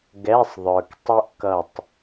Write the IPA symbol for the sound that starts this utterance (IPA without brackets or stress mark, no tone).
ɡ